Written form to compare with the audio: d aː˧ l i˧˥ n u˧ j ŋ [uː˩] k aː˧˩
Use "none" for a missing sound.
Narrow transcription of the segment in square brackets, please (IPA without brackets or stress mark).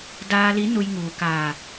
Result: uː˩